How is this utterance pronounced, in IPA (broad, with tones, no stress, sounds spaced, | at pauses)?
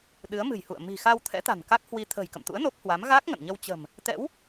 ɗ ɨ˨˦ ə̯ m ɨ̤˨˩ j h ṵ˧˨ ə̯ m i̤˨˩ x a˧ w t̪ʰ ɛ̰˧˥ t̪ a̤˨˩ n k a˦˥ k̚ h w i˧ t̪ʰ ə̤ː˨˩ j k ə̰˧˨ m t̪ ṵ˧˥ ə̯ n o˦˥ p̚ h w a˨˦ m ɣ a˦˥ k̚ ŋ ə̰˧˨ n ɲ ə˧ w t͡ɕ ə̤˨˩ m | t̪ ɛ̰˧˥ w